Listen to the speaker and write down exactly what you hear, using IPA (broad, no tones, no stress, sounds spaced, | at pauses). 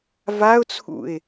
v a ʊ̯ t͡sʰ ṵ ɪ̯